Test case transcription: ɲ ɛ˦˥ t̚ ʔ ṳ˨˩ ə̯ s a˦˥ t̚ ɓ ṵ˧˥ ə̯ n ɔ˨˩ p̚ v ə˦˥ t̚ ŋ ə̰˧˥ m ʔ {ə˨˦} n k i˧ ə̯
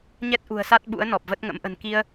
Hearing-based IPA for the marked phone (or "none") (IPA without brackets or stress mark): ə̤˨˩